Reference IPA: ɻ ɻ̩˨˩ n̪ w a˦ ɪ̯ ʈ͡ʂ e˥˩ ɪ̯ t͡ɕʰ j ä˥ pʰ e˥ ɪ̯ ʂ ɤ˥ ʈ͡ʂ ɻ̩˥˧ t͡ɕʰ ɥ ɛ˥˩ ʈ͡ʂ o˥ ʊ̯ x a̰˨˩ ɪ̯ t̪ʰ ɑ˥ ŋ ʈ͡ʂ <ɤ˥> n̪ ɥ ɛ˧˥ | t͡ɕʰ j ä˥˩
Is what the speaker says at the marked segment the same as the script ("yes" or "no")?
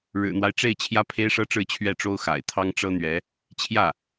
yes